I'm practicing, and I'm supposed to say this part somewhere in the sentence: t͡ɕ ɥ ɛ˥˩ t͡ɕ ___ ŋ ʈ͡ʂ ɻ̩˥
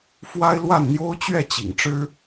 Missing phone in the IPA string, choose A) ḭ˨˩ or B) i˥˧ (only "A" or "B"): A